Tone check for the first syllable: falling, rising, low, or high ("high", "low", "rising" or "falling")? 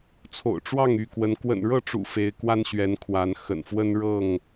low